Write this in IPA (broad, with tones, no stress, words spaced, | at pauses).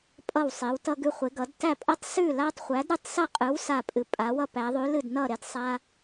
pʼʌ˥˧wsˤe˧˥wtʌ˥ ɡʉ˥χʷe˧˥ɡʌ˧˥d tæ˥˧pʼʌ˥tˤ sʉ˥˧la˥tˤχʷæ˧˥d ɾɨ˥˧tˤsʌ˥˧qʼɨ˧˥w sa˥˧ pʼɨ˧˥pʼa˧˥wʌ˥pæ˧˥ ðˤʉ˧˥lɨ˥˧dnʌ˥˧ɾe˥˧d sˤa˥